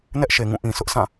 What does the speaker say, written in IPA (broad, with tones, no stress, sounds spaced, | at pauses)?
n ɛ˦ ʔ ʃ e˨ ŋ ũ˦˨ ʔ ĩ˨ s ʊ˦ ʔ sʰ ã˦˨